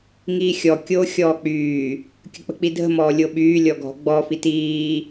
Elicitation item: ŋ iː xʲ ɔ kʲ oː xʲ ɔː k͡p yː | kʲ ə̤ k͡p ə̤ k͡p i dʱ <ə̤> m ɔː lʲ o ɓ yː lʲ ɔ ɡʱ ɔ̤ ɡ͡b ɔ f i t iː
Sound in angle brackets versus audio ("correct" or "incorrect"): correct